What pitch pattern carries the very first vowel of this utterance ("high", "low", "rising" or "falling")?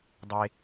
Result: low